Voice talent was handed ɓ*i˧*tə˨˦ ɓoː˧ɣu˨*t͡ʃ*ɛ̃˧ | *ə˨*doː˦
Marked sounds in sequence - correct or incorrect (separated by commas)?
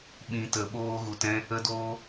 incorrect, incorrect, incorrect